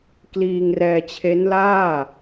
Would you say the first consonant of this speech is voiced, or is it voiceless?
voiceless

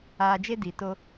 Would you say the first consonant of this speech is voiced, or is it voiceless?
voiced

